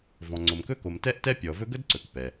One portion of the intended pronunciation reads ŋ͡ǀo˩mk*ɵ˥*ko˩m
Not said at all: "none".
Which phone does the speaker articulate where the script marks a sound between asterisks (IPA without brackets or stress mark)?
ɵ˥